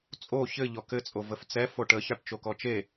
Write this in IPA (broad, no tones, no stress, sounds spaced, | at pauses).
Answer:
t͡sʼ o ç ɘ ʎ ɔ k ɘ t͡sʼ o v ə f t͡s ɛ f o ʈ ə ç ɑ ʈ t͡ʃ o k ɔ t͡ʃ e